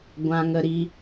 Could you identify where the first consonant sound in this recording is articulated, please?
velar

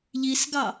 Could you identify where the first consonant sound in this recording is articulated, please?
palatal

